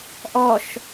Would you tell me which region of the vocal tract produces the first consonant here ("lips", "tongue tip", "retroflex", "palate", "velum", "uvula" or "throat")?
throat